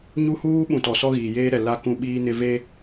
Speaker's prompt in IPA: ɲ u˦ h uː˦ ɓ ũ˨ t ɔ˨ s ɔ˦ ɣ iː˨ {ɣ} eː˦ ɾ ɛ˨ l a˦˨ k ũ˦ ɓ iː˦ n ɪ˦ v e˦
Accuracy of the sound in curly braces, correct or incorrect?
incorrect